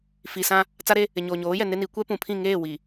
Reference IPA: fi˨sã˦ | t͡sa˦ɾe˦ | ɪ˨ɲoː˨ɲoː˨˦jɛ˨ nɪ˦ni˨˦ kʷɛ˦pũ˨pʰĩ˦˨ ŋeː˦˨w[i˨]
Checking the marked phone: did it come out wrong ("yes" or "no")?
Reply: no